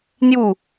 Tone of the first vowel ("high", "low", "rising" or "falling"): falling